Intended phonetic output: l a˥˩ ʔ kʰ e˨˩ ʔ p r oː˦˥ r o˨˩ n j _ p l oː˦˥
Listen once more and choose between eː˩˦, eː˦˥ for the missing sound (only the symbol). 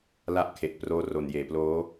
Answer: eː˩˦